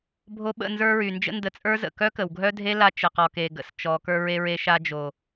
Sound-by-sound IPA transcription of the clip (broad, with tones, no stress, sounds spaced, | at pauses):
bʱ o˧ ɓ ə̰˦˨ n z ə˞˧ ɹ y˨ n d͡ʒ ə̰˦ n d ə˧ t͡sʼ ə˞˦ z ə̰˨ k œ˦ k ə˨ w ɡʱ œ˦ dʱ e˦ l a˧ t͡ʃ ə˨ q ɔ˨ k e˨ ɡ ə̰˨ s t͡ʃ ɔ˨ k ə˞˧ ɹ e˧ ɹ e˧ ʃ a˧ d͡ʒ o˨